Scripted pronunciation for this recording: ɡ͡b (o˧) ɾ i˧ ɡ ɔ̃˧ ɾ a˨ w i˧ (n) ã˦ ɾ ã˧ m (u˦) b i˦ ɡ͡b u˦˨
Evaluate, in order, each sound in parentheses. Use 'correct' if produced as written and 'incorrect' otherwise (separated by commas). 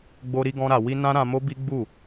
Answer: correct, correct, incorrect